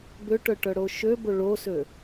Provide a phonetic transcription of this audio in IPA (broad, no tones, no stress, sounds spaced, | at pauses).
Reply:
b ø ʈ œ ʈ œ ɽ o ʃ ø b o ɭ o s ø